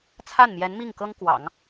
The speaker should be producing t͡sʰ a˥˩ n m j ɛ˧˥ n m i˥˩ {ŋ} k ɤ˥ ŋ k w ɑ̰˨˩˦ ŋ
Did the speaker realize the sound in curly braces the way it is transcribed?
yes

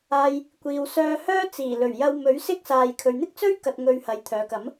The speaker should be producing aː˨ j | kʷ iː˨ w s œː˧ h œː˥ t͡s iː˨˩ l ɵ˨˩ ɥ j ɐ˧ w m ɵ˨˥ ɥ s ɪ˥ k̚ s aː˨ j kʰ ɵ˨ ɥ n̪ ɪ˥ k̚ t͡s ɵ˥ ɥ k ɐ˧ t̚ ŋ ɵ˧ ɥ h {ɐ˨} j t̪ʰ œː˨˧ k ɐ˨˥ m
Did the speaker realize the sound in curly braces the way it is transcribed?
yes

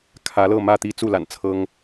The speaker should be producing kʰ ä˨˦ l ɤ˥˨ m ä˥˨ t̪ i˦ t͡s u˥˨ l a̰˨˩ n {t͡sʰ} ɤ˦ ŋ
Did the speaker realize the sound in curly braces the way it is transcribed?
yes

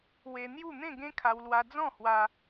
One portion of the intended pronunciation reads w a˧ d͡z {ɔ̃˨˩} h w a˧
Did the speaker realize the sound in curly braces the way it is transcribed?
no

